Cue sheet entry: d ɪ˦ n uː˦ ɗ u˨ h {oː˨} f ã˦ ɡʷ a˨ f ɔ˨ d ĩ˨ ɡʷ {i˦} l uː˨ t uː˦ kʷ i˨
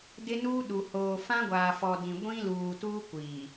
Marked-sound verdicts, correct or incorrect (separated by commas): correct, incorrect